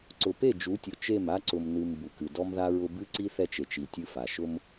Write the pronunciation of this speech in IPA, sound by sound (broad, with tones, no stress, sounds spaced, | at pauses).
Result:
ǀ ʊ˨ p e˦˨ d͡ʒ u˨˦ tʲ ʊ˨ t͡ʃ e˦˨ m a˦ ǀ ʊ˨ m n ɨ˨ m b u˨ k ɨ˨ d ɔ˦ m ð a˦ ɹ ʊ˦ b ɨ˦ ǀ i˦ θ ɛ˦ t͡ʃ e˨ t͡ʃ i˨ tʲ ɨ˦ f a˨ ʃ ʊ˦ m